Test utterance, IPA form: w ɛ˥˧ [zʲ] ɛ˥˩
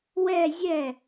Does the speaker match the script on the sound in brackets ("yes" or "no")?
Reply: yes